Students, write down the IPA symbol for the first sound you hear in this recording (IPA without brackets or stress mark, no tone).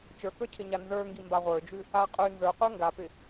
t͡ʃ